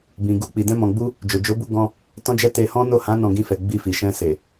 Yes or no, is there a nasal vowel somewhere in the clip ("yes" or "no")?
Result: yes